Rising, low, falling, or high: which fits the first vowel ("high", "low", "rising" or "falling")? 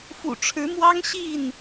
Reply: low